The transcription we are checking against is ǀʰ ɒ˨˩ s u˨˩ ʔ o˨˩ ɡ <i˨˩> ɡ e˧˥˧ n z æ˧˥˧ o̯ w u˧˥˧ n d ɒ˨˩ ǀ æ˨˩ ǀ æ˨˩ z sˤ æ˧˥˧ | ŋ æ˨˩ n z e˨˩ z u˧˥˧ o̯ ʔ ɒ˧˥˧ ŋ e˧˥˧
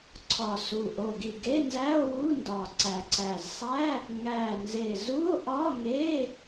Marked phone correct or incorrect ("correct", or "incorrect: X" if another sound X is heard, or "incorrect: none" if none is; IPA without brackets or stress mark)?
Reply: correct